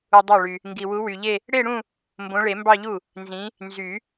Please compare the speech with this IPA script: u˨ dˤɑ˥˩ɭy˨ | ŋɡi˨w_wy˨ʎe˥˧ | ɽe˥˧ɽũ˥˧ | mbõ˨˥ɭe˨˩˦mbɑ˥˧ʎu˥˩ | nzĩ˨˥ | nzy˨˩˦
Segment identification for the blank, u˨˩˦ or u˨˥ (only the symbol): u˨˥